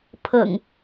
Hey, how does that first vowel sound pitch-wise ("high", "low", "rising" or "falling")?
low